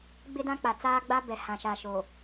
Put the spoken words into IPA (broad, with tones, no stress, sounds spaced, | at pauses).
ɡ͡b ɪ˦ d ã˦ k͡p a˨ t͡s aː˦ ɡ͡b a˦ b ɛ˨ h ã˨ ʃ a˨ ʃ o˨